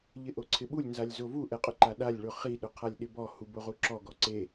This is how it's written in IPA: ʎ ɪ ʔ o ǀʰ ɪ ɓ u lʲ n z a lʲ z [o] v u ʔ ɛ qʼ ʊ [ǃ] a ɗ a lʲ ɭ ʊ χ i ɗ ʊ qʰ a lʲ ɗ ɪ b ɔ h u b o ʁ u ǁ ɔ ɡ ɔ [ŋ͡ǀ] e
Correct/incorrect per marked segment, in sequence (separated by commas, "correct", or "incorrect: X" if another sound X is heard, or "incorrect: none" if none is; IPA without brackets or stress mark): correct, correct, incorrect: ǀ